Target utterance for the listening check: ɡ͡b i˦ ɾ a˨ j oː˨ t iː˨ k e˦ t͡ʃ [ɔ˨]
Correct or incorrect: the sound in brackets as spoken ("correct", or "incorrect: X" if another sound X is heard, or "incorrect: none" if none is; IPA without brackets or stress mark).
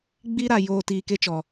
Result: correct